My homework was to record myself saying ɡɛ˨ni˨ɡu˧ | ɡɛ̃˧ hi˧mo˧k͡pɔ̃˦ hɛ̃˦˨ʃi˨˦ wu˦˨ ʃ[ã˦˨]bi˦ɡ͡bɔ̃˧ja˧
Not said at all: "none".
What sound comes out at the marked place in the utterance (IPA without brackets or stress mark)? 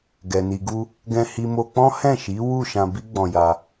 ã˧